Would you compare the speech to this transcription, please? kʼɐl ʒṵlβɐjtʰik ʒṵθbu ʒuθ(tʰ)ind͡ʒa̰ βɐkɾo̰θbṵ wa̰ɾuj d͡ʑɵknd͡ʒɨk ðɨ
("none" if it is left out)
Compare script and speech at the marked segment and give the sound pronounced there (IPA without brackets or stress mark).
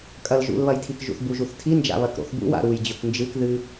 tʰ